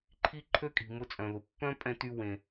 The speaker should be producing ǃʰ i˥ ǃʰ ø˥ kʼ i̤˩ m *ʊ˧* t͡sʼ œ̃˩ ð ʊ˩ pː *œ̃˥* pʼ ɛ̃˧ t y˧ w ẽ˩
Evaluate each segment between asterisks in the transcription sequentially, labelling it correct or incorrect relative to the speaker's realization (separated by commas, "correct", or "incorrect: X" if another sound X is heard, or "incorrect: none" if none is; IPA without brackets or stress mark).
correct, correct